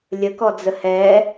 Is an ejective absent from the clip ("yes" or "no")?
yes